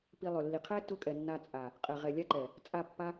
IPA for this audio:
pi˧lˠø˨lːi˨ qʰɛ˦ tʊ˦kʼɛ˨nːa˧ t͡sʼa˨ | qʼɛ˨ʁɛ˨lʲa˦ǃɛ˨ | t͡sʼa˦˨pːa˦

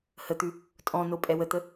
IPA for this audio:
hət̪ʉ | tʼɔ̃no pʼɛwət̪ə

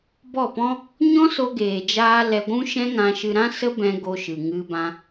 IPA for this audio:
bɔ˦˨pɔ̃˦ | ɲɔ̃˦so˧ɡeː˨d͡ʒaː˧ lɛ˧ɡʷũ˦ʃɛ̃˦ ŋã˧ʃɨ˧ɾã˦ sə˦bɛ̃˧ ɡo˧ʃɨ˨ŋɨ˧bã˧

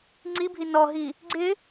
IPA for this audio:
ŋ͡ǀibʱi nɔɦi | ɡ͡ǀɪ

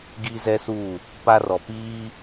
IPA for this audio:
ɡi˦zɛ˦su˦˨ | pa˦rɔ˨piː˦

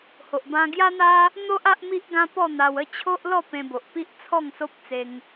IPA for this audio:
ho˨ʔbã˧ ɡja˦n̪a˦ | n̪o˦ʔ a˦ʔmi˦ʔ ɡã˦pɔ˥˧n̪a˧w ə˥˧t͡ɕʰo˦ʔlɔ˥˧ pẽ˧bo˨ʔpi˦ʔt͡sʰɔ˥˧ŋ so˦p̚t͡se˧ŋ

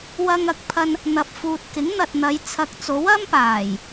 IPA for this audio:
wɐ˧ŋɐ˧k̚pʰɐ˧n | n̪ɐ˨p̚fuː˨t̚kɪ˨˥ŋ n̪ɐ˨t̚n̪ɐ˨˧j t͡sʰɐ˨k̚t͡so˨˥w ɐ˥mpaː˨˩j

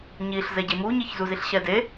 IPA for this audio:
ɲiɬ zɛɟemuɲiç zuziɬɕɛde

